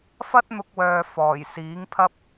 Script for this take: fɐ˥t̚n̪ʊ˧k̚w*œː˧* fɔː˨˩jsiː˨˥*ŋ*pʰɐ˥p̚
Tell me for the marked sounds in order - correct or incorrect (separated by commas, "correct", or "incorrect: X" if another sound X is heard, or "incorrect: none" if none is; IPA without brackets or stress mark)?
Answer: incorrect: œː˨, correct